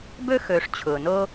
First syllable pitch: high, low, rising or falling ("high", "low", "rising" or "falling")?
high